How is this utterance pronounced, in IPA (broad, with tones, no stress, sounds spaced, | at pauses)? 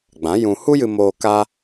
ɡ͡b ã˨˦ j ũ˧ h u˦ j ɨ˧ m oː˧ k a˦